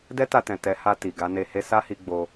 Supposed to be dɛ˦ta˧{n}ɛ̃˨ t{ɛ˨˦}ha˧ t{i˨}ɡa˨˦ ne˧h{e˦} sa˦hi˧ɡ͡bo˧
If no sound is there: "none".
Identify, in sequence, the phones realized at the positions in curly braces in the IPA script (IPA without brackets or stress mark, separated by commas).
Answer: t, ɛ˨˦, i˨, e˦